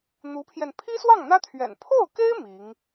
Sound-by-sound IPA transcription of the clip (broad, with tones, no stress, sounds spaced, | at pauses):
n̪ u˧˥ pʰ j ɛ˧ n pʰ i˥ s w ɑ˥˩ ŋ n̪ ä˥ t̪ʰ ɥ ɛ̰˨˩ n pʰ o˥˩ ʊ̯ k e˥ ɪ̯ m i˧˥ ŋ